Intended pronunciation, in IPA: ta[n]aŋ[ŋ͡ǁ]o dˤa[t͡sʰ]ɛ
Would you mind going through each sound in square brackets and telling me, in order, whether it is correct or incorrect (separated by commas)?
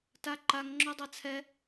incorrect, correct, correct